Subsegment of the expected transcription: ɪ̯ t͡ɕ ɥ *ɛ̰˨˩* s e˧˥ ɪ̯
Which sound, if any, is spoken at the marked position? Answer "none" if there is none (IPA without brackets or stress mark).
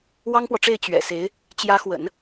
ɛ̰˨˩